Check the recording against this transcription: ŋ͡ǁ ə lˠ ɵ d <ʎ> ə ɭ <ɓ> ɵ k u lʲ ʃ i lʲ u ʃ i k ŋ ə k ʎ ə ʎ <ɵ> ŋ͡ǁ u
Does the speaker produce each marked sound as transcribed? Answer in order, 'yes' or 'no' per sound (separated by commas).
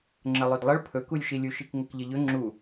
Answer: no, no, yes